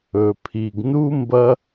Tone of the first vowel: low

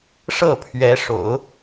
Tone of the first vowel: falling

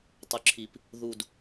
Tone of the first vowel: low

